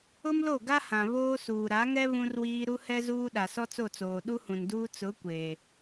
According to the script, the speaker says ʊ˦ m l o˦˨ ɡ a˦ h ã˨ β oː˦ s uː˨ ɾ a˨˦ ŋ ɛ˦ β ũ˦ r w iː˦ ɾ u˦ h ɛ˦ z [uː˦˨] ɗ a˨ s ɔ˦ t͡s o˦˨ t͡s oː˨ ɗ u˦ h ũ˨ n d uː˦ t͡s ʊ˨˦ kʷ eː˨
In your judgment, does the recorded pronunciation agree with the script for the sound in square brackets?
no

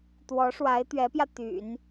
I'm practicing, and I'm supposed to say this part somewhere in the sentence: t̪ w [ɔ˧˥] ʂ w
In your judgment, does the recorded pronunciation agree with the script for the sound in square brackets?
yes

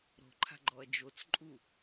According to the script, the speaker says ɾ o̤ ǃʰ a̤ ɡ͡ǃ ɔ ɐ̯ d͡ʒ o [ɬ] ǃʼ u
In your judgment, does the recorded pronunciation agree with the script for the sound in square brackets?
no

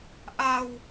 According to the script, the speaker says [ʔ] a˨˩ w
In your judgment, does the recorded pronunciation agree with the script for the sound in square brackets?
yes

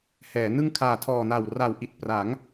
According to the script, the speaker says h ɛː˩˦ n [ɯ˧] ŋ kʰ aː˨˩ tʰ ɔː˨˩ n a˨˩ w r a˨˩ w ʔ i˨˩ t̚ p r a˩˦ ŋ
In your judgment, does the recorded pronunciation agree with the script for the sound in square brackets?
no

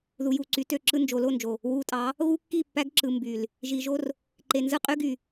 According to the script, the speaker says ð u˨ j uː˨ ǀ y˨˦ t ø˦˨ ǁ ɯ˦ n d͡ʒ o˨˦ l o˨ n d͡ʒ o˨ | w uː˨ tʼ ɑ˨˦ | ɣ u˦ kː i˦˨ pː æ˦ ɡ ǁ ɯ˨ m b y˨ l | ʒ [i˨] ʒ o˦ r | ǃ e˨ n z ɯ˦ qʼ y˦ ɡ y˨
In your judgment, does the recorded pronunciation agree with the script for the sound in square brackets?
yes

